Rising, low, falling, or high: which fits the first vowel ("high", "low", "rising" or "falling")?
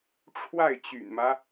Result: falling